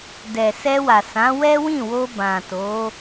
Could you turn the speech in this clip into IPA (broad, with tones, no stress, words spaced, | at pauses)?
dɛ˨sɛ˧wa˨ sã˨˦wɛ˦wĩ˦˨wo˧ bã˨to˨˦